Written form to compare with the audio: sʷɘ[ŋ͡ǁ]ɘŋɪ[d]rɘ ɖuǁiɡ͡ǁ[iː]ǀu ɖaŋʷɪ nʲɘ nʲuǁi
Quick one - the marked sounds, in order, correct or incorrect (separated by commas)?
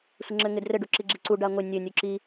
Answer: correct, correct, incorrect